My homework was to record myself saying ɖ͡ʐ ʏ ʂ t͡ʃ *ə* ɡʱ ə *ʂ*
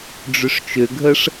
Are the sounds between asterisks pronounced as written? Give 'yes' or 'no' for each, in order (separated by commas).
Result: no, yes